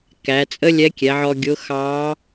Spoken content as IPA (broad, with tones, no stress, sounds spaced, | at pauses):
k æ˩˧ t͡sʼ ə˥ lʲ ɛ˧˥ kʲ ɛ˩˧ ʕ ɔ˧ ɡʲ ʊ˧˥ x ɑ˧˥